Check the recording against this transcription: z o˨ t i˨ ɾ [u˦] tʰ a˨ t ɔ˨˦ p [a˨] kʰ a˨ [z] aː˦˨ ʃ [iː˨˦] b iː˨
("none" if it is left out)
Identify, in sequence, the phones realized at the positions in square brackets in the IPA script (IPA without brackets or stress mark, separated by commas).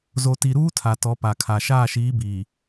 uː˦, a˨, ʃ, iː˨˦